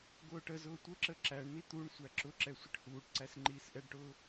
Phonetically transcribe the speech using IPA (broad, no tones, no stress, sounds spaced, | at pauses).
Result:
ɡ ʊː ʈ ə z ʊː tʷ ə ǁ ə ǁ æ ɳ n̪ i t̪ u ɳ sʷ æ ǁ ʊ ǁ ɛ sʷ ɪ ʈ h uː ʈ ǀ æ s ŋ͡ǃ iː s ʔ ɛ ɖ ʈ ʊː